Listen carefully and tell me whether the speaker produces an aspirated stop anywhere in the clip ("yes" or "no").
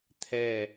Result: yes